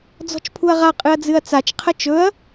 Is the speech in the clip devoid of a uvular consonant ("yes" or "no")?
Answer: no